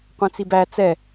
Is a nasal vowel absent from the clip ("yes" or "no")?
no